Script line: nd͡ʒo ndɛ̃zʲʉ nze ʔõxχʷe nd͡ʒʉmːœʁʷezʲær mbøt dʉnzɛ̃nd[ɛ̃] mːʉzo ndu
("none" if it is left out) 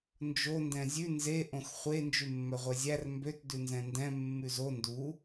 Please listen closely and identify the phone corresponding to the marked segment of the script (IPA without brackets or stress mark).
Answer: ɛ̃